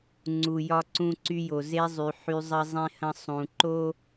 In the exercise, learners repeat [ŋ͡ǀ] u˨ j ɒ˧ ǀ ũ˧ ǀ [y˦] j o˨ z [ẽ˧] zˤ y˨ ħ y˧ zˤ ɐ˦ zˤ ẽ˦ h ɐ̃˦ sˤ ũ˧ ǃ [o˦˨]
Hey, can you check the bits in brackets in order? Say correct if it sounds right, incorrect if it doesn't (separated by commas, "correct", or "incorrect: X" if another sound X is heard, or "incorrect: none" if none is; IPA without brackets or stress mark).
correct, incorrect: y˧, incorrect: e˧, incorrect: o˦